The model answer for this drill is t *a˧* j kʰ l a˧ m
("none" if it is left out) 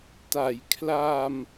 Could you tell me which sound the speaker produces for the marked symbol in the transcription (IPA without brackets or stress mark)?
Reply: a˩˦